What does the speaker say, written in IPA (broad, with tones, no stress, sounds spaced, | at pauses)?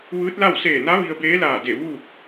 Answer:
ʋ ɯː˧˥ t̚ l a˥˨ w s eː˧˩ n a˧˥ ʋ i˧ ə̯ b eː˧˥ l aː˧˩ d e˧˩ ʋ uː˥˨ k̚